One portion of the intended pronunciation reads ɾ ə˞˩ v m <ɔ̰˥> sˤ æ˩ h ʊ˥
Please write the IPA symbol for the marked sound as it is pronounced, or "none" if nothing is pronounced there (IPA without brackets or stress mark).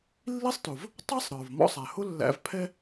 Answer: ɔ̰˥